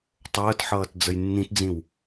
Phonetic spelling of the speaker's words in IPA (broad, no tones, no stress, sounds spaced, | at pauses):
tˤ əː t ħ ʌː t d͡z ə j nː ĩ t d͡z ĩ w